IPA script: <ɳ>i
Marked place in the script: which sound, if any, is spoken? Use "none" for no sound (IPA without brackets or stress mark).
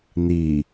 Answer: n̪